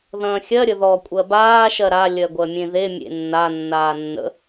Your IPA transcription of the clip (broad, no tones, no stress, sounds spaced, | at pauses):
ð ɐ̃ː xʲ ɜ ɾʲ ə ð ɔ kʷʼ ɜ b aː ʃ ɜ ɾ a lʲ ɜ ɡʷ ɜ mʲ ẽ ð e mʲ ḛ nː a nː aː nː ə̰